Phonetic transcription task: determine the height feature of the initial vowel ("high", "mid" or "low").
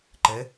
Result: mid